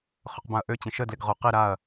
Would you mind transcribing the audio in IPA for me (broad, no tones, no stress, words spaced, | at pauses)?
χɵqbãɐ̯ʔø t͡ɕə̃ʃə dlɪɡʁo qi ɾaɐ̯